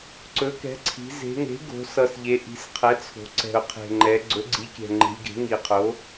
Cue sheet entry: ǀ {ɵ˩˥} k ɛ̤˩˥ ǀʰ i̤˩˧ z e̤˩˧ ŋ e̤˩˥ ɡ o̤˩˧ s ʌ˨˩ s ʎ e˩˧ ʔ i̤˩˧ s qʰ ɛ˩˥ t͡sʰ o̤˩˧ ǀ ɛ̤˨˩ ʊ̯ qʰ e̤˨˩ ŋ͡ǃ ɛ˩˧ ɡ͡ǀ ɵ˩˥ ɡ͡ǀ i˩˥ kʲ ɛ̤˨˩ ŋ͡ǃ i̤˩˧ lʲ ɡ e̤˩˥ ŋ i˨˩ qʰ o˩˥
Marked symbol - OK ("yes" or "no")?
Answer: yes